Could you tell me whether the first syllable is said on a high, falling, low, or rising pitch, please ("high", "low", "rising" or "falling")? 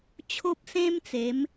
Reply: high